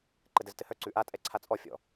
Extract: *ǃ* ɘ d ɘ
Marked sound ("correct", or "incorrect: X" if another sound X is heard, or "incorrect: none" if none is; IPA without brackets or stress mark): correct